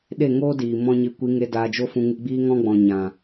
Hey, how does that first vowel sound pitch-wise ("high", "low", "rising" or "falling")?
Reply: falling